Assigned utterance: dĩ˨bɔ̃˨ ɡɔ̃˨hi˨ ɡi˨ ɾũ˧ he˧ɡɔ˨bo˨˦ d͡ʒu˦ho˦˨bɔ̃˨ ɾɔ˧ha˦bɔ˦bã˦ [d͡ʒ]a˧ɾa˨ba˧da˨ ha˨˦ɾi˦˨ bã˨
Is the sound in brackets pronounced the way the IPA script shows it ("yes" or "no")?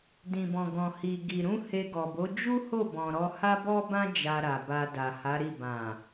yes